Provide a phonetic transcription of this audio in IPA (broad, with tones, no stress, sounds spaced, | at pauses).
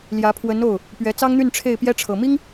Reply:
l j ä˧˥ pʰ w ə˧˥ n o˥˩ ʊ̯ | p ɥ ɛ˧˥ t͡s ɑ˥ ŋ n̪ y˥˧ n ʈ͡ʂʰ e˥˩ ɪ̯ p j ɛ˥ ʈ͡ʂʰ ɤ˨˩ m i˥ ŋ